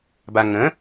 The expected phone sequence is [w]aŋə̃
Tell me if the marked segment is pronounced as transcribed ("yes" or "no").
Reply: no